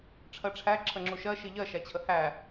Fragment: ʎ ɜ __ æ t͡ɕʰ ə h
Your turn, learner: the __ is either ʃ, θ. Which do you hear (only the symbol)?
ʃ